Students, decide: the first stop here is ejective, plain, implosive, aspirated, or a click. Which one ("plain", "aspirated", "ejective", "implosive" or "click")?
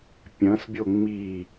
plain